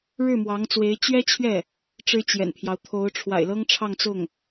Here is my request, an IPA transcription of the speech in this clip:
ɻ ɻ̩˥˩ m w ɑ˧˥ ŋ t͡s w e˧˥ ɪ̯ t͡ɕ ɥ ɛ˥ t͡ɕʰ ɥ ɛ˥˩ | ʈ͡ʂ ɻ̩˥ t͡ɕ j ɛ̰˨˩ n pʰ j ɑ˦ ʊ̯ t̪ʰ o˧˥ ʊ̯ ʈ͡ʂʰ w a̰˨˩ ɪ̯ l ɤ˥ ŋ ʈ͡ʂʰ ɑ˥˧ ŋ t͡s ʊ˥˩ ŋ

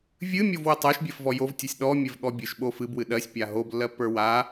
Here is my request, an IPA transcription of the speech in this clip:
vʲ ɨ mʲ o v w ɛ tˤ ɜ ʃ bʲ ɜ f v ɔ j o v tʲ ɨ sʲ ɗ ɔ mʲ ɛ v ɠ ɔ bʲ ɨ ʃ ɓ o f ɨ b w ɨ ɗ ɜ sʲ pʲ a ɦ o b lː ɜ pː ə˞ w a

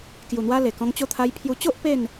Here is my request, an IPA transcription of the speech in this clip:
k j u˨˩ n̪ w a˧ l e˨˩ k ɔ̃˧ ŋ t͡ɕ o˧ t̪ʰ a˧ j pʰ j u˧ t͡ɕ o˦ ʔ p e˥˧ n

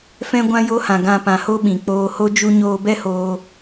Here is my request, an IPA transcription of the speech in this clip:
f ɛ̃˧ ɡʷ ã˧ j o˧ h ã˨ ɡ ã˧ p ã˨ h o˧ ɓ ĩ˨ k͡p oː˧ h o˦ d͡ʒ u˦ ɲ oː˧ b ɛ˦ h oː˧

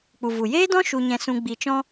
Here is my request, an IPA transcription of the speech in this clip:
k͡p u˨ v u˨ j eː˦ d ɔ̃˦ ʃ u˧ ɲ ɛ̃˧ s ũ˧ ɡ͡b i˨ t͡ʃ ɔ̃˧

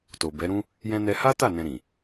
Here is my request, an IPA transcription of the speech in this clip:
t o˨ b ɛ˨˦ ɾ ũ˦ | j ɛ̃˧ n ɛ˧ h a˦ t a˦˨ n ɛ̃˧ ɾ ĩ˨

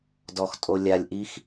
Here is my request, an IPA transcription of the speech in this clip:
d ɔ˩ x tʼ o˩ lʲ a˩ lʲ ʔ i˧ x

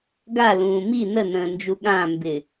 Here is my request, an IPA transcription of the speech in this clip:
ɡ a l ũː m i n ə n ə̃ː n d͡ʒ u ɠ ã m b ɪ

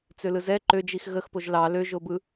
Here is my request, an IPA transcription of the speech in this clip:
t͡s ø l ɯ z ɛ ǃ ø d͡ʒ i x ɣ ə x p o ʒ l ɑ l ø ʒ o b ɯ

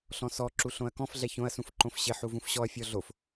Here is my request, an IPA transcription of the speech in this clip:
ɬ ɔ̃ s ɔ ǁ u ɬ õ ɐ̯ k ɔ̃ f ɮ ɛ ç õ ɐ̯ s ũ f ǃ õ f ɕ ɪ ħ u v ũ f ɕ ɔ ɐ̯ fʲ ɔ ɮ o f

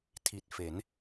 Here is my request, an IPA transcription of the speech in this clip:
tʰ i˨˩ t̚ f e˩˦ n

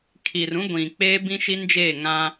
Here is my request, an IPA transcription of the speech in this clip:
kʰ i˨ r ũ˦ ɡʷ ĩ˨ k͡p eː˦ b ĩ˦ ʃ i˦ n d͡ʒ eː˦˨ ŋ ã˦

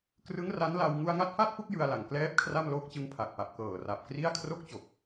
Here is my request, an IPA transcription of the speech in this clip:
k r ɯ˦˥ ŋ r a˦˥ n l a˧ w ŋ u˧ a̯ ŋ a˦˥ t̚ f a˥˩ t̚ p u˥˩ k̚ j ɯ˧ a̯ l a˨˩ ŋ k l ɛː˦˥ p̚ kʰ r a˥˩ m l oː˦˥ k̚ t͡ɕ ɯ˧ ŋ pʰ a˨˩ k̚ p a˨˩ p̚ k ɤː˨˩ r a˨˩ p̚ k r i˥˩ a̯ kʰ r o˥˩ k̚ t͡ɕ o˨˩ k̚

